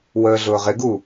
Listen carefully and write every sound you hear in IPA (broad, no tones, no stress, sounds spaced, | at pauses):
w əː ɮ ʊː ʁ ɪ ɡ u